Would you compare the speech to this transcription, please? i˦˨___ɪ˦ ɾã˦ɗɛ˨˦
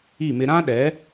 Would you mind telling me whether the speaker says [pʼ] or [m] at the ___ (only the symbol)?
m